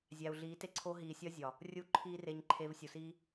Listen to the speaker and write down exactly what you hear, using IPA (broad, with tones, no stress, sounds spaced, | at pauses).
zʲ æ˨ u̯ ɮ iː˨˦ t e˦ ǀʰ o˦ ɦ iː˨ sʲ ɒ˦ zʲ ɒ˨ | rʲ u˦˨ ǃʰ iː˦ r e˧ ɲ ǃʰ e˧ v sʲ u˨ s iː˦